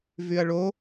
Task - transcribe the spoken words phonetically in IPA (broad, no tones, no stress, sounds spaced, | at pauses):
v y ɐ̯ ɭ o